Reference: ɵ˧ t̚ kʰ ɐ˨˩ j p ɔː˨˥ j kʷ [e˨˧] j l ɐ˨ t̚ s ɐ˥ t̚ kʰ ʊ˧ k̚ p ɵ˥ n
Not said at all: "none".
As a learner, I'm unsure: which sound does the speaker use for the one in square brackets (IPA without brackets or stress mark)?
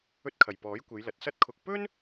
e˨˧